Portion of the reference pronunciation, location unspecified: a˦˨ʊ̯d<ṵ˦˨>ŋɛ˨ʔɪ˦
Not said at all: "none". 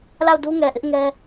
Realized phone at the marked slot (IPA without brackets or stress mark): u˦